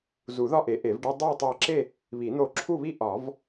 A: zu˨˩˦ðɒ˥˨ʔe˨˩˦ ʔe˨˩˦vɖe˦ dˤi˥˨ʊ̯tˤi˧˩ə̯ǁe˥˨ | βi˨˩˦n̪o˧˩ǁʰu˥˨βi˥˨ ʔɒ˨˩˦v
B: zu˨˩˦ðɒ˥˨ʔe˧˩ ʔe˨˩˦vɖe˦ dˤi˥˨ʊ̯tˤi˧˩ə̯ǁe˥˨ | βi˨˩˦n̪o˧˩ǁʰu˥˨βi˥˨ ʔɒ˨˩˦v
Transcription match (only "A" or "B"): A